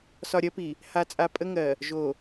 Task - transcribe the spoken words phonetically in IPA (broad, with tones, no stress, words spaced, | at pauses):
sɒ˨ɾʲɜ˦pi˨ | ha˨t͡sʼa˨ pʼə˦ŋɜ˨ | ʒo˨